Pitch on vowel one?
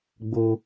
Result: high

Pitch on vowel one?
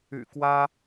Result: low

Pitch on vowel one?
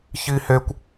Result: high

